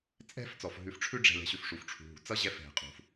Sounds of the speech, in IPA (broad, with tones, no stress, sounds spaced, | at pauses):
t͡sʼ ɛ̤˦ f t͡s ɔ˩ f ɦ ʉ˨ f ʈ͡ʂʰ ʉ˥ ɖ͡ʐ ɛ̤˨ l ɛ̤˨ ɕ ʉ˨ f ʂ u˩ f ʈ͡ʂʰ ṳ˩ ɦ ṳ˩ t͡s ʌ˥ ʑ ɛ˦ f ɦ ɛ̤˩ qʼ ṳ˩ f